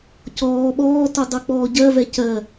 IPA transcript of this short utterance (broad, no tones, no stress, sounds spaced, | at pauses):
c ɔː ɓ ɔː t u dˤ u k͡p ɔː ɟ ɜ v ɛ c ɜ